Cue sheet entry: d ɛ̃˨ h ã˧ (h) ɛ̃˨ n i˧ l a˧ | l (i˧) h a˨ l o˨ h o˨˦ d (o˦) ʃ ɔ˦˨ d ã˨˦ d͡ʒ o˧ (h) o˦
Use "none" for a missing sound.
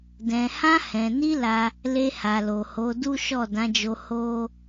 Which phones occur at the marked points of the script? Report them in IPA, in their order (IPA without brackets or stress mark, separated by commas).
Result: h, e˧, u˦, h